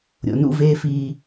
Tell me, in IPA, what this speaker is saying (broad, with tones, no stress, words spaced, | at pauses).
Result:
ɾʲo̰˨nṵ˦ veː˦fiː˦